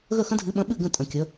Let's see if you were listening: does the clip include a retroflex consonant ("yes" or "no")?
no